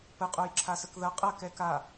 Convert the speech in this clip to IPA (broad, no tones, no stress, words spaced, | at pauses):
pə qʼojǁʰasəkðɐ qʼɐkɛ ka